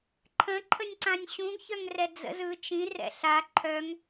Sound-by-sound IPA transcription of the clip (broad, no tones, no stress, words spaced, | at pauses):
ǃʰə̃ǃʰənʲǀãnʲ ɕũɡçœŋrɛ d͡zə̰z ɯ t͡ʃĩrɛ̰ ɬa ǃʰœŋ